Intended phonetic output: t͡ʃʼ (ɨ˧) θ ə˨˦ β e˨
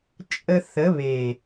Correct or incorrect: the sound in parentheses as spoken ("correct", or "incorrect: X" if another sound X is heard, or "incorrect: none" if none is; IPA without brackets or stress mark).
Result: incorrect: ə˧